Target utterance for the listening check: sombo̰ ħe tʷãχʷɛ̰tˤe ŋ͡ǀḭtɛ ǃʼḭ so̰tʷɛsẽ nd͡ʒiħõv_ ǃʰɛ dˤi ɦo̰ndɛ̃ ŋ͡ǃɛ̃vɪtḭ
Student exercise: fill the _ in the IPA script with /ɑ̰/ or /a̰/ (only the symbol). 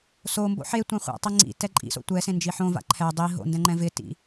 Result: a̰